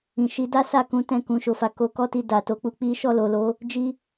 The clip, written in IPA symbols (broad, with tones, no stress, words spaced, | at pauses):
ĩ˨ʃi˨˦da˦sa˦˨ kũ˨˦tɛ̃˦˨ kũ˨˦ʃo˧fa˧ ko˧kɔ˦ti˧ da˨to˨˦k͡pu˧k͡pi˦ ʃɔ˦˨lo˨lo˨˦ | d͡ʒi˧